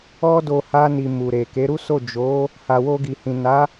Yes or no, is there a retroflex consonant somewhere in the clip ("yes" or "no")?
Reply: no